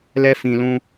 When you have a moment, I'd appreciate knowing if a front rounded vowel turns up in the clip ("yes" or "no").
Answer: no